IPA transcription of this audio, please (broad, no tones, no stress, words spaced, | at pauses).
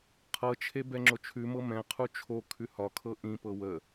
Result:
qʰɤt͡ʃʰe bɛŋ͡ǁot͡ʃʰʉmɤ mɛ̃qʰu t͡ʃʰo kʰʉhɒkʰɤ ʔĩpɤ wə